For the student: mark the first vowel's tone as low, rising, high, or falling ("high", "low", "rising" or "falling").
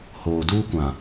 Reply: low